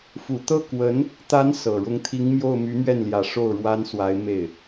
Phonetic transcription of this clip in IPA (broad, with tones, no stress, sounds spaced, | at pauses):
f u˨˩ t̪ ɤ˥˩ k w ə˧˥ n | t̪ a˧˥ n s ɤ˨˩ ɻ ʊ˧˥ ŋ t̪ʰ i˧˥ ŋ m j o˥˩ ʊ̯ m y˧˥ m ɥ ɛ˥˩ n l j ä˨˩ ʂ o˥˩ ʊ̯ ɻ w a˥ n s w a˧˥ ɪ̯ m e˥˩ ɪ̯